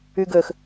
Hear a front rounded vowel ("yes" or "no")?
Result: yes